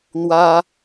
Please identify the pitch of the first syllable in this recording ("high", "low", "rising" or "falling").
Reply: high